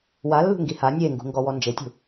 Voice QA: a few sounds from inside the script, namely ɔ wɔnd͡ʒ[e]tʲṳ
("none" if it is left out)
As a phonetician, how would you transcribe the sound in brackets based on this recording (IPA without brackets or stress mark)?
e